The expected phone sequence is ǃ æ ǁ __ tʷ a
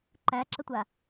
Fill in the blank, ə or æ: ə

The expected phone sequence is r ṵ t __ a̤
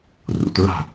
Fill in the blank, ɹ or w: ɹ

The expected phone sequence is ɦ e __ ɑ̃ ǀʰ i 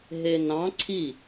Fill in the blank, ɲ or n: n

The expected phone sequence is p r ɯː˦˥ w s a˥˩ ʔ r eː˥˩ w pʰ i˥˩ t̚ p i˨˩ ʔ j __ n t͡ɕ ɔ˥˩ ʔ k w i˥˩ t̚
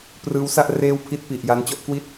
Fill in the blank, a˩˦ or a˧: a˧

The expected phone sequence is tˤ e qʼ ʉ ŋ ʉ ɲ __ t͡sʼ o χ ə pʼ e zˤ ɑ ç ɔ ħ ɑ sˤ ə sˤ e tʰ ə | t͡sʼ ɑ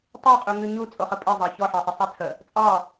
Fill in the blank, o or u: u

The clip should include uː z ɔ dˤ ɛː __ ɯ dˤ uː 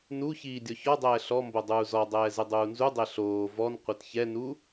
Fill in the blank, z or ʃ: z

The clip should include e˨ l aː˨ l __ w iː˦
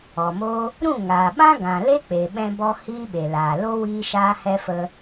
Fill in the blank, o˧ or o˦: o˦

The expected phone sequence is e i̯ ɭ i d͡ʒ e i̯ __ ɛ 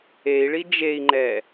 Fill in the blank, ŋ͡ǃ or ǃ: ŋ͡ǃ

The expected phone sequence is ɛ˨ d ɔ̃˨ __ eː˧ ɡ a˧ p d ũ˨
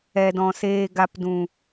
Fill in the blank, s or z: s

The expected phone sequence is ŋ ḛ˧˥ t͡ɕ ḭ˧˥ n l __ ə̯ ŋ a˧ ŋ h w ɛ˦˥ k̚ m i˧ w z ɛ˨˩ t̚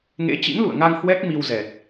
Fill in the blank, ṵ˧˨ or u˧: ṵ˧˨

